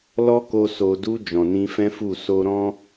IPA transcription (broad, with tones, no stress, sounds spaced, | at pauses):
l ɔ˦ k o˧ s o˨ d u˧ d͡ʒ ɔ̃˨ n ĩ˧ f ɛ̃˦ f u˦˨ s o˧ ɾ ɔ̃˦